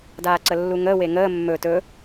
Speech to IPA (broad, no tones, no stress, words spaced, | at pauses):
daːǀəlːuŋəː weŋəː mːɵ tɵ